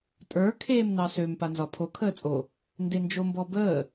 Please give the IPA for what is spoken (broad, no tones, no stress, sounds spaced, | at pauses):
tʼ ə˞ kʰ eː m n ɑ s ø m p a n z ɒ pʰ o kʰ əː t͡sʼ o | n d e n d͡ʒ o m b ɔ b əː